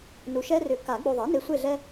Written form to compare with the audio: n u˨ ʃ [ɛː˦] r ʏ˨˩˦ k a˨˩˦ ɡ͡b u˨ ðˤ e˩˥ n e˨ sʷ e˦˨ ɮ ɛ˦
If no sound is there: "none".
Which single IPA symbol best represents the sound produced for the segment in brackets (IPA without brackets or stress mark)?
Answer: ɛ˦